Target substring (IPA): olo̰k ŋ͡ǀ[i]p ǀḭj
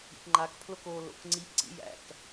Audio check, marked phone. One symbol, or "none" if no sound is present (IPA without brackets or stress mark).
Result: i